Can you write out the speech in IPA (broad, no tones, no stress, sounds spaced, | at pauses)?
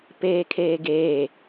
p eː kʰ eː ɡ eː